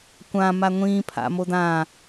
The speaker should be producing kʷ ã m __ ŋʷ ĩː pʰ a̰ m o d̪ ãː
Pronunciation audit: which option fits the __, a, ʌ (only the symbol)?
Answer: a